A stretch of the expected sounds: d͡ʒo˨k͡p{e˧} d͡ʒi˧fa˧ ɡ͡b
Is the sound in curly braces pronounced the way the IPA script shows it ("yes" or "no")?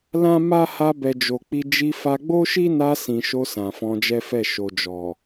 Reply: no